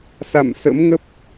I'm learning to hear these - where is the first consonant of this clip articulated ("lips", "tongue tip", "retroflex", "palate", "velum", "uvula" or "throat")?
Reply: tongue tip